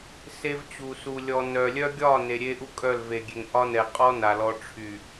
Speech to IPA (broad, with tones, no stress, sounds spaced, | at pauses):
s e˦ v t͡ɕ u˨ s u˨ lʲ ɔ˨ n œ˨ lʲ œ˦ ɡʲ ɒ˦˨ n e˨ ɾʲ e˦ ʔ u˦ kʼ œ˦˨ l v e˨ ɡʲ e˨ ŋ ʔ ɒ˦ n ɛ˨ qʼ ɔ˦ n a˨ l ɔ˦ ʈ͡ʂʰ y˨